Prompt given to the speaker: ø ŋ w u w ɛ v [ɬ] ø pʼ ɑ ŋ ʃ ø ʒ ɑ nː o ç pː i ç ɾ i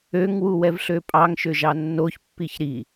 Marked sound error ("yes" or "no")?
no